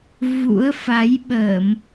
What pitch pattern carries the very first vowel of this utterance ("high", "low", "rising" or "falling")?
rising